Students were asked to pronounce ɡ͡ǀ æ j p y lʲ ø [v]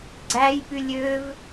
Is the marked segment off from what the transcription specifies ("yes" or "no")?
no